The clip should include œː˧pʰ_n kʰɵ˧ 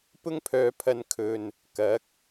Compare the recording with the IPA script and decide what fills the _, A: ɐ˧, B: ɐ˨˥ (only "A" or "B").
A